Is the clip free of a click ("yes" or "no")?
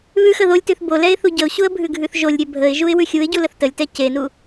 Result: yes